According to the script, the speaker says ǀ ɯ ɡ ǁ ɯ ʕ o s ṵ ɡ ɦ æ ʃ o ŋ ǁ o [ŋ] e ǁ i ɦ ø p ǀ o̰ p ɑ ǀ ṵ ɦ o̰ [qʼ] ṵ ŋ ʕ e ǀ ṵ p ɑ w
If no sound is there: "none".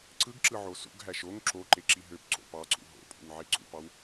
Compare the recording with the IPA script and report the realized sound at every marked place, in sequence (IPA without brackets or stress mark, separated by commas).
ǃ, pʼ